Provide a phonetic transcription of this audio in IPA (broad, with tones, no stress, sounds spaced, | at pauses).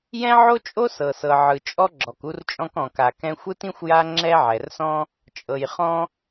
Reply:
j ɛ̃˥ ʕ o˥ t͡ʃʼ o˥ s ɤ˩ s ɤ˩ ʕ ɯ˩ t͡ʃʼ ɔ˥ ɡ͡ǁ ɔ˩ k u˥ r t͡ʃʼ ɔ̃˥ k ɔ̃˩ k a˩ k ɛ̃˥ xʷ ɯ˥ t ĩ˥ xʷ j a˥ ŋ͡ǁ ɛ˥ ʕ ɛ˩ r s ɔ̃˥ | t͡ʃʼ ɤ˩ j χ ɔ̃˥